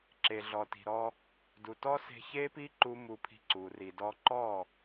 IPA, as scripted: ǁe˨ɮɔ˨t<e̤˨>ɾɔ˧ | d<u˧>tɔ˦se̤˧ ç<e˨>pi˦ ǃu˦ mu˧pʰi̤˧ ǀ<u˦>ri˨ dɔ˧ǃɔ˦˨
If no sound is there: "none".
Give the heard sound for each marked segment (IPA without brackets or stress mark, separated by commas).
i̤˨, u˨, e˦, u˨